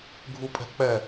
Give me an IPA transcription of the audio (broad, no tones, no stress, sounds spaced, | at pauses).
ɡʱ u pʼ ɛ̤ k͡p ɛ